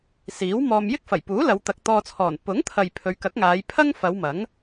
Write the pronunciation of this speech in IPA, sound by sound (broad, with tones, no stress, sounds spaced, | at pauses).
s iː˨˥ w m ɔː˧ m j ɪ˥ k̚ f ɐ˨˩ j p uː˨˥ l ɐ˨˧ w t̪ ɐ˨ k̚ t̪ ɔː˧ t͡sʰ ɔː˨˩ n p ʊ˨˥ ŋ t̪ʰ ɐ˨ j pʰ ɵ˨˧ ɥ k ɐ˨˥ k̚ ŋ aː˨˧ j pʰ ɐ˥ ŋ f ɐ˨˧ w m ɐ˨˥ ŋ